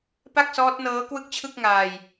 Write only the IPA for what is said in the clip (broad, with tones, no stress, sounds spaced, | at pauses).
p a˥˩ k̚ s ɔː˦˥ t̚ n ɤː˦˥ k w ɯ˥˩ k̚ t͡ɕʰ ɯ˥˩ k̚ ŋ aː˧ j